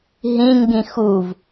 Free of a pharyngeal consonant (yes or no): yes